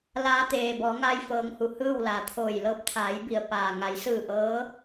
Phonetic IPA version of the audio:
l aː˧ t̪ eː˩ b ɔː˩˧ ŋ a˧ j f ɤː˩˧ ŋ h u˩ h ɯː˥˨ w l aː˩ t̪ʰ oː˧˩ j l ɤː˥˨ p̚ t̪ʰ aː˩˧ j b i˩ ə̯ p aː˩ ŋ a˩˧ j s ɯː˧˩ ʔ ɤː˧˥

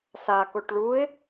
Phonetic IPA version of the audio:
s a k o ʈ ɭ u ɪ̯

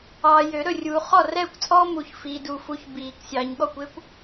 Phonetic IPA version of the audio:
ɑː˨ j ø˨˩˦ ɾ ɵ˥˨ rʲ uː˨ χ ɔ˥˨ r ɛː˥˨ kʷ t͡sʼ ɔː˥ m u˨˩˦ ç f iː˨ d uː˨ f u˨˦ ç b iː˨˩˦ k sʲ ɑː˨ ɲ ɠ ɔ˥˨ kʷ e˥ kʷ

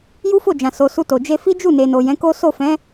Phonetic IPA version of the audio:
j u˦ f o˦˨ d͡ʒ ã˨ s o˨ s u˧ t o˨ d͡ʒ e˧ f i˦ d͡ʒ u˦˨ n e˨ n o˨ j ɛ̃˨˦ k o˦ s o˦˨ f ɛ̃˨˦

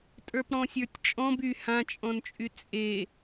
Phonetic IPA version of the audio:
tʼ ə˞ p ɽ ɔ̃ sʲ ə˞ tʲ t͡ʃʼ ɔ̃ b y h ã t͡ʃʼ ɔ̃ n t͡ʃʼ y t͡sʼ e

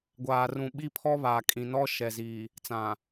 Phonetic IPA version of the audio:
ɡʷ aː˨ r ũ˨ ɓ i˦ pʰ ɔ˦ β aː˨ kʼ ĩ˨ n ɔ˦ ʃ ɛ˨ z iː˨ | t͡s ã˨

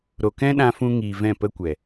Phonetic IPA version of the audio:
ɾ o˨ k ɛ̃˦ ɗ ã˧ f ũ˧ ŋ iː˨ v ɛ̃˦˨ p ə˦ kʷ ɛ˨

